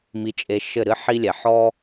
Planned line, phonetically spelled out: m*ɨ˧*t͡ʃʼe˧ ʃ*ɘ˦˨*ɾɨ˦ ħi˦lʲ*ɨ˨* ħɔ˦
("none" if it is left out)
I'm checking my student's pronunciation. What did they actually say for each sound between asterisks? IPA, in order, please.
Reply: i˧, ɘ˦˨, ɛ˨

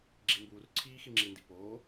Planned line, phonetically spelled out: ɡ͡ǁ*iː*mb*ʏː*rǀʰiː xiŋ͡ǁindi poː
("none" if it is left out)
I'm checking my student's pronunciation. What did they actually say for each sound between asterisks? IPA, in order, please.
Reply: i, uː

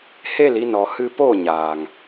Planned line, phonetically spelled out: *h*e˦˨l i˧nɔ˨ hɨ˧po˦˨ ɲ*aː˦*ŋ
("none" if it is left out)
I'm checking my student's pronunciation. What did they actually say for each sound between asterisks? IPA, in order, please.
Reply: h, aː˨

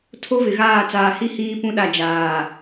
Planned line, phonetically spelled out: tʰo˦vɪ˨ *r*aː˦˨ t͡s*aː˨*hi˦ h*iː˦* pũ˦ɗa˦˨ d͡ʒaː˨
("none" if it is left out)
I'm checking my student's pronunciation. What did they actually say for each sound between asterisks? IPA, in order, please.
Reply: ɣ, aː˨, iː˦

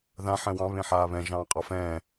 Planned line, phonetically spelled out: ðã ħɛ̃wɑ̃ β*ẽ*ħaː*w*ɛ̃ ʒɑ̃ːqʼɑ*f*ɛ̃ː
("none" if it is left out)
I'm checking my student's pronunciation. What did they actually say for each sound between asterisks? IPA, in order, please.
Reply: ẽ, β, f

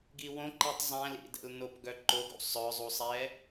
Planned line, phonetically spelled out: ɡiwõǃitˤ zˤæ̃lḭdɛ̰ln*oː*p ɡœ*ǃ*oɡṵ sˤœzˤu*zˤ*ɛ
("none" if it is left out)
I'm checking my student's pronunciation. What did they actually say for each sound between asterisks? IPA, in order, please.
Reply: o, ǃ, sˤ

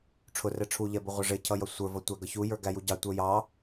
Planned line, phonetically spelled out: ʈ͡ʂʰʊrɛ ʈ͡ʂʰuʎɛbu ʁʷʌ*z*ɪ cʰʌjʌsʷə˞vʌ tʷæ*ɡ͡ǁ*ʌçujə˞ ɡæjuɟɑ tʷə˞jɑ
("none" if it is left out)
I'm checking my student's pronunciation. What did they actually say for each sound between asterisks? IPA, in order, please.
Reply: ʐ, ɡ

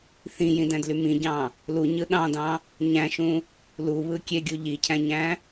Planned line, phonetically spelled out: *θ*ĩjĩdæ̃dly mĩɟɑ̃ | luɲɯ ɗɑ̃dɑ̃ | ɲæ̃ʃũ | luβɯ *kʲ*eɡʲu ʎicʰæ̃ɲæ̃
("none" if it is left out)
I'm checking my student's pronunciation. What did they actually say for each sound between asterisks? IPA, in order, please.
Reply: θ, kʲ

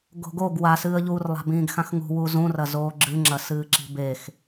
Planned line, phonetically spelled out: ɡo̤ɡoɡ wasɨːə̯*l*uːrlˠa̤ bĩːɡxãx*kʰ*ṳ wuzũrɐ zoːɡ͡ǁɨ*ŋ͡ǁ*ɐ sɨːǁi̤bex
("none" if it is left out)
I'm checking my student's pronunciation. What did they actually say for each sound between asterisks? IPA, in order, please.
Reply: ʎ, ŋ, ŋ͡ǁ

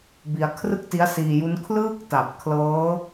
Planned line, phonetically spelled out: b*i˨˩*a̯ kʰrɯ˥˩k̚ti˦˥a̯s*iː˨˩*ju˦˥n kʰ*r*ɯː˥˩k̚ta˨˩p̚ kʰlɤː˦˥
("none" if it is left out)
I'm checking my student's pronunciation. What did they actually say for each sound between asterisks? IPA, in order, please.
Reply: i˧, iː˧, l

